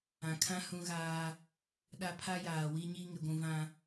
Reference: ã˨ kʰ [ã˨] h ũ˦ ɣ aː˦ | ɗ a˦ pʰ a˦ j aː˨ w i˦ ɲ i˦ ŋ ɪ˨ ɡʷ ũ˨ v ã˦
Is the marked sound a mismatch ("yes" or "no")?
yes